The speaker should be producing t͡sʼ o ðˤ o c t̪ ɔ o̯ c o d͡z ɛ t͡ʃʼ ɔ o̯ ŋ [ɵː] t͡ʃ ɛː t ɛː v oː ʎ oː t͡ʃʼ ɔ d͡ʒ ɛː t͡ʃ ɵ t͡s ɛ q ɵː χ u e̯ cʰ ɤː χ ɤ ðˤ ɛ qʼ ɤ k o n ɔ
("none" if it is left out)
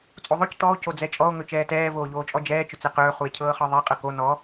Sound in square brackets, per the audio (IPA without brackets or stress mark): ɵ